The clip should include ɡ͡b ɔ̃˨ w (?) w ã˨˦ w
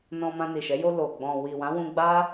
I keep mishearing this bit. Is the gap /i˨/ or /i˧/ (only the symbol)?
i˨